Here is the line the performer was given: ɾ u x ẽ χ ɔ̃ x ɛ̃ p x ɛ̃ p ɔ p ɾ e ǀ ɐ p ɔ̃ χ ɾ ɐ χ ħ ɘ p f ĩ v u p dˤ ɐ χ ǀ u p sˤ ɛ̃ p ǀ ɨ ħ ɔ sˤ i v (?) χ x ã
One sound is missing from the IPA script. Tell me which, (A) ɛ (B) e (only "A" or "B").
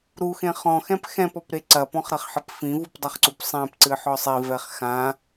A